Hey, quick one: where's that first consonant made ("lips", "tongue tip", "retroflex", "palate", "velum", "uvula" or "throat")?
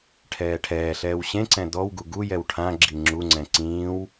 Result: retroflex